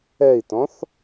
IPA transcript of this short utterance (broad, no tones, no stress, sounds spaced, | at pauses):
ɛ i̯ t ɔ̃ θ